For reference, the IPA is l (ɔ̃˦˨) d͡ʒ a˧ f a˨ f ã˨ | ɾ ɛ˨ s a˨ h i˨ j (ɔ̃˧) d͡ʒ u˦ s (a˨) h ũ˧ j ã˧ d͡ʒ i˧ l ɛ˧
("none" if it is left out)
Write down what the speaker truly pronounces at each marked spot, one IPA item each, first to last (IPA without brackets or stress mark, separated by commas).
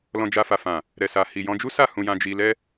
ɔ̃˧, ɔ̃˧, a˦˨